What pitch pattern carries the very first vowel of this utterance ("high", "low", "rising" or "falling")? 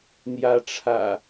rising